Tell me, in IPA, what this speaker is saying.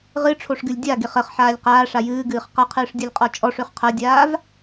ʁɨʈ͡ʂʰoʂɡɨlʲ dʲaɡeχ əχħaːlʲ qaːʂa jɨːɡɨːχ qʌqʰɨːʂdʲɤlʲqʼɔ t͡ʃʼɔʂøχ qʰʌdʲaːv

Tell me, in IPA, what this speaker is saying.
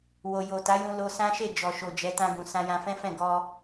wo˨jo˨ta˨˦jũ˧ lo˧sã˦ʃe˦˨ d͡ʒɔ˨ʃo˨d͡ʒɛ˨˦ tã˧ɡũ˨ sã˧jã˧fɛ̃˦fɛ̃˦˨ ɡɔ˧

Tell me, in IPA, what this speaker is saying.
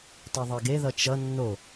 tˤɯðˤeɡe ðʌt͡ʃʌ nːo

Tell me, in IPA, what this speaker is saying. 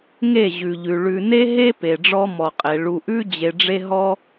ŋe˦˨ʑʉ˨ʎʉ˨ ɭʉ˨ne˦ɦe˦ pe˨ɖ͡ʐɔ˦mɔ˨qʼe˨ ɭu˨ʔʉ˦ d͡ʑe˧ɖ͡ʐe˦ɦɔ˦

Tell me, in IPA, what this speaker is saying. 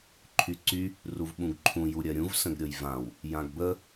ǃʰyǀy | ruvɓũɡǃʰũ juɾʲɜɾʲũv sə̃ɡɾʲɤjvãw | jãɡbə

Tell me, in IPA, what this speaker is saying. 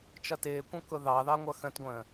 t͡ʃʌtɪːkʷə̃ kʊðɑðɑ ŋʷʌxə̃tɡʷə̃ː

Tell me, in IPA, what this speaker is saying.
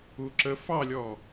u ǁə fɑlʲɔ

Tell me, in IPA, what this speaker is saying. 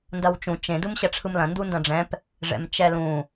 ndɐwt͡ʃũ t͡ʃẽ dɯmɕɐʈ͡ʂʰɯmlɐ̃ ndundɐ̃ɖ͡ʐɛ̃p | ʐɛ̰mt͡ʃɛlũ

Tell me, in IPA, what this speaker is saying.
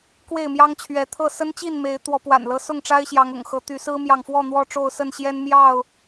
kwe˥˨ɪ̯ mjɑ˦ŋt͡ɕʰɥɛ˨˦t̪ʰɤ˥˨ sə˦nt͡ɕi˥˨nme˨˦ɪ̯ t̪wɔ˨˦pwa̰˨˩nlɤ˦sʊ˥˨ŋ ʈ͡ʂa˦ɪ̯ɕjɑ˨˦ŋʊ̰˨˩ŋxɤ˨˦ t̪y˨˦sɹ̩˦mjɑ˨ŋfwɔ˥˨ n̪wɔ˥˨ʈ͡ʂo˥˨ʊ̯sə˥˨nɕjɛ˦n mjɑ˥˨ʊ̯

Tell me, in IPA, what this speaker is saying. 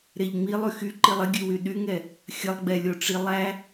ɾeʎŋ͡milˠ yxyǃilˠ ɪɡʲʉwy ɗyŋɛ | xʲəlˠɡ͡bɛlʲoʈ͡ʂi lˠæ

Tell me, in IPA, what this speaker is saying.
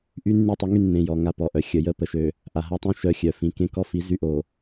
ʔy˦ nːy˦tˤə˨˦ŋy˦ nːẽ˨ jɔ˨ ŋa˦˨pɔ˨ʔœ˨ xʲə˨ jə˦˨ pə˨ʃø˨ | ʔa˨ɦa˦tˤĩ˦ ʃœ˦xʲœ˨ fĩ˨kẽ˦kɔ˦fi˨˦ zy˦ʔo˨

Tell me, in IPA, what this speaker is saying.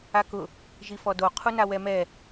akʊ | ʒifɔdo qʰunawɛmɛ

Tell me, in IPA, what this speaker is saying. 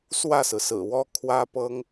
swä˥˩sɹ̩˩sɹ̩˨˩wɔ˥ kʰwä˥pɤ˥ŋ

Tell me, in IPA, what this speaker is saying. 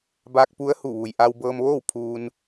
baː˧k̚pu˧˥ə̯hu˧˩ʋu˩j ʔa˧wbɤː˧mʋoː˥˨w pʰuː˧n

